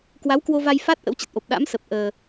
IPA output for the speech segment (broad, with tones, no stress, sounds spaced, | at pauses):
k w a˨˦ w k w o˧ v a˧ j f a˦˥ t̚ ʔ ə̰˧˥ w t͡ɕ ə˨˩ t̚ ʔ o˨˩ p̚ ɗ a̰˧˥ m s ə˨˩ p̚ ʔ əː˨˩